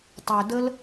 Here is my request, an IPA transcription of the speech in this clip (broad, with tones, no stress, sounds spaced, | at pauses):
tˤ ø˨ d ə˦ l